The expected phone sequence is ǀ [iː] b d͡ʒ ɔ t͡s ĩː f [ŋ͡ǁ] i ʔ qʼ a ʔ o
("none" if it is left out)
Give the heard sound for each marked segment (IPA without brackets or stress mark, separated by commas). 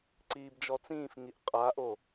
iː, ŋ